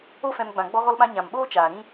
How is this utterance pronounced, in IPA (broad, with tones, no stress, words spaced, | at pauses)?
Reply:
o˦fɛ̃˧m ɡ͡bã˨ɡ͡bɔ˧ɣɔ˧lɓã˧ ɲã˨mɓoː˦t͡ʃaː˨ ɾĩ˦